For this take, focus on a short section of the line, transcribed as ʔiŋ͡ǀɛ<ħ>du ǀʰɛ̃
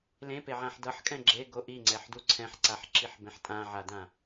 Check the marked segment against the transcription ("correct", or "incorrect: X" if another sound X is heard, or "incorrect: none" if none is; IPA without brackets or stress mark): correct